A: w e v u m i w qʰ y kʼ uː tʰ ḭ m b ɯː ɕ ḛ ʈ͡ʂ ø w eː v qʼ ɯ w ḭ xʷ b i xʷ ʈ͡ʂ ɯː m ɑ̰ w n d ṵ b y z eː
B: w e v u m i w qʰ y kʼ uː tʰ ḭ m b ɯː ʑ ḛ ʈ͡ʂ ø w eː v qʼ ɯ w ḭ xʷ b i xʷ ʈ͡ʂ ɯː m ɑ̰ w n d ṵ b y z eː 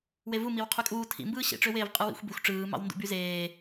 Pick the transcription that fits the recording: A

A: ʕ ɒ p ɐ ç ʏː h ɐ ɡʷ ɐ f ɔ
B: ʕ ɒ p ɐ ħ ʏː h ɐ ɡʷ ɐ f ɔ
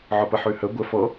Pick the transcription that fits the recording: B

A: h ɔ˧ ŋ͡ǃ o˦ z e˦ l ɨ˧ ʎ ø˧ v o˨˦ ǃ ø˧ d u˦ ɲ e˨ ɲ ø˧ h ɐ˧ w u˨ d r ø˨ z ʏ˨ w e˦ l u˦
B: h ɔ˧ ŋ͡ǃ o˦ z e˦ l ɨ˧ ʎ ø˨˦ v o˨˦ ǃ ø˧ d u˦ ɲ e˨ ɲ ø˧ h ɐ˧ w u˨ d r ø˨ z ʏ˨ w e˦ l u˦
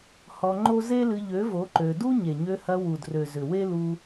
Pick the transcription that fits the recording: B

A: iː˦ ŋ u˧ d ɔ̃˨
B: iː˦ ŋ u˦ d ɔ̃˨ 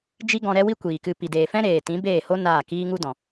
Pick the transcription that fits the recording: B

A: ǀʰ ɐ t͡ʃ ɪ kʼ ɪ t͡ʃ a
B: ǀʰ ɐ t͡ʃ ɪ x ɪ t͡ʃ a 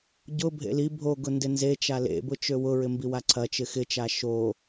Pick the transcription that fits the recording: B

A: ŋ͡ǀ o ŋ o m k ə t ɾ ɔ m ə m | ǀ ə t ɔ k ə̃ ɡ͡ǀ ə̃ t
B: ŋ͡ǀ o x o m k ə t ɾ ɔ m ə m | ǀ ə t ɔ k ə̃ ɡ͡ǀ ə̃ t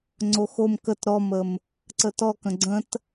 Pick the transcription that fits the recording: B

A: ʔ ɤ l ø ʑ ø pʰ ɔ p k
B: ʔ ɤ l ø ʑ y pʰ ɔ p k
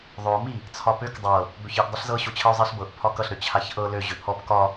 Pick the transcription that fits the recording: A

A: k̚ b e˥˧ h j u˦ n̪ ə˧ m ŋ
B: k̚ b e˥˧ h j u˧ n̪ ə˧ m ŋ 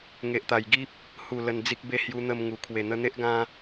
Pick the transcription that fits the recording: B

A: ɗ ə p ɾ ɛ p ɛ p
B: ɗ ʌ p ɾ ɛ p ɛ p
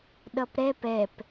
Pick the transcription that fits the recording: B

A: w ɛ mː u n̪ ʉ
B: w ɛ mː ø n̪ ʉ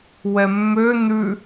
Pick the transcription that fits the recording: B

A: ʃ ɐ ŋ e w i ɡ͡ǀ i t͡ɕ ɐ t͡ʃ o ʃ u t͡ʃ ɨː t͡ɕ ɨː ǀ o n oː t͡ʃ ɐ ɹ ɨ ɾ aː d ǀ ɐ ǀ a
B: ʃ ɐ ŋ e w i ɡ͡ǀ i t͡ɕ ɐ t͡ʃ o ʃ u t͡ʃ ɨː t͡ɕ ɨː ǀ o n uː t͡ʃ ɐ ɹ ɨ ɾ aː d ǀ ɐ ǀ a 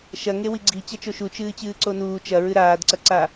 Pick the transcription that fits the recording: B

